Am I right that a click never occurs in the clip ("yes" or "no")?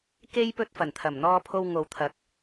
yes